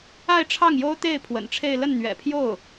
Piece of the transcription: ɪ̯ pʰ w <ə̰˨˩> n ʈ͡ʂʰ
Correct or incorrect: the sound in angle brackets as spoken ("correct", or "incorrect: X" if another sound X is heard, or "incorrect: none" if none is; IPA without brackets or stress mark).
correct